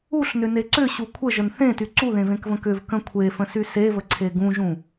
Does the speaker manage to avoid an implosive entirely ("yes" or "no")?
yes